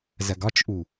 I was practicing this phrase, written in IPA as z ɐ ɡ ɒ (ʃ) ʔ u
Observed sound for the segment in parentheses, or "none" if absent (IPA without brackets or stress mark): t͡ʃ